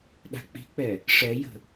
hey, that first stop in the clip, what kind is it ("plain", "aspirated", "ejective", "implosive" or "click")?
implosive